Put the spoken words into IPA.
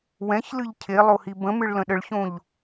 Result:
w ɛ̃ ç l ɨ ʎ cʰ e lˠ o h i b ə̃ m ɨ ɭ l ə̃ ɗ ə ɭ ç õ ʎ

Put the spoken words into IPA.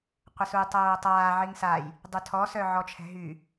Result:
qʷ ə s u j tˤ oː tˤ aː ʕ i ŋ s a j | dˤ y tʰ ɔ s œ ʕ ɔ t͡ʃʰ ɛ̤ ɦ y

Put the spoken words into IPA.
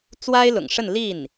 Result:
t͡s w a˥ ɪ̯ l ʊ̰˨˩ ŋ ʂ ə˥˧ n l i˥˩ n

